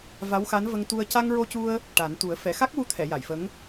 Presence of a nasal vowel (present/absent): absent